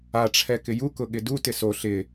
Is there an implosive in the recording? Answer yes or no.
yes